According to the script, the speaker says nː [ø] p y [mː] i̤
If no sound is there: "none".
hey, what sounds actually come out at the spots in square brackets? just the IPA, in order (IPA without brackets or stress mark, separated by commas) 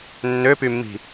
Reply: ø, mː